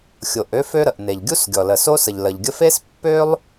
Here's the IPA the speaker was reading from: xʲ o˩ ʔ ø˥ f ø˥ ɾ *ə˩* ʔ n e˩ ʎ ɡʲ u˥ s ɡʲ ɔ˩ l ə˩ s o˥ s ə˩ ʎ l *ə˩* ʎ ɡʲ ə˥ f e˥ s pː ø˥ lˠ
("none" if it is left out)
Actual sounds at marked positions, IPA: ə˩, ə˩

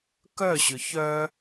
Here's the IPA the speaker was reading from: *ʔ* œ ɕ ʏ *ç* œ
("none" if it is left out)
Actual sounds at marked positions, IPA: k, ç

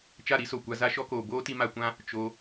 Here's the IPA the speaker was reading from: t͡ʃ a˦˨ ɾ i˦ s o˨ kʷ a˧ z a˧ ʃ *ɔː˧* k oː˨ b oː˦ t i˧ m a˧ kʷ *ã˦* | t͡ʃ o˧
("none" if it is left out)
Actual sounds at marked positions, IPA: ɔ˧, ã˦

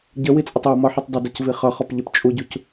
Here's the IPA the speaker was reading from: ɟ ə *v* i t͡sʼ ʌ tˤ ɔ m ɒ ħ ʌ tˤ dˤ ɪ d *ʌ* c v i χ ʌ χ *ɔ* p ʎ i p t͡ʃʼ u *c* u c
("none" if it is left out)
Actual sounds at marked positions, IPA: w, ʌ, ɔ, ɟ

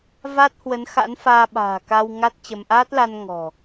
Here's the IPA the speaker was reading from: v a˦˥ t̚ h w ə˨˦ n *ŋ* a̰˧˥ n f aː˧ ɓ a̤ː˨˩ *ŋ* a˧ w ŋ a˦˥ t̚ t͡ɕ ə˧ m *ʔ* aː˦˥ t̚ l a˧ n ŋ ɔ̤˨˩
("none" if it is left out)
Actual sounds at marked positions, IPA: x, k, ʔ

